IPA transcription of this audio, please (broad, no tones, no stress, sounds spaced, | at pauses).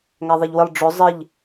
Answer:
ŋ æ ðˤ ɛ ʎ w ɪ lˠ ɖ͡ʐ ʊ zˤ ɪ ʎ